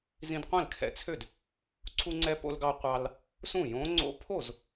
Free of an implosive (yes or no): yes